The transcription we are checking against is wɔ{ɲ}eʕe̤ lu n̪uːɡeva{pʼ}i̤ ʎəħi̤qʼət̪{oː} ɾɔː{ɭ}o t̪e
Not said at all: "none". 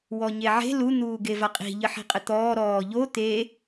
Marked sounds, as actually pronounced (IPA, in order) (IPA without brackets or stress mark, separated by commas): ɲ, qʼ, ɔː, ʎ